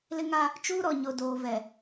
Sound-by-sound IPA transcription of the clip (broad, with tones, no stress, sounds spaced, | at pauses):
l ɪ˦ ŋ a˦ | t͡ʃ uː˦ ɾ ɔ˨ ɲ o˨ d oː˨ v ɛ˨